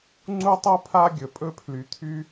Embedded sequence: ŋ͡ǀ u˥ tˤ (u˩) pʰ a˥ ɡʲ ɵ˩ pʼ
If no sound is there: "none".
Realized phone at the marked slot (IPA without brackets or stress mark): u˥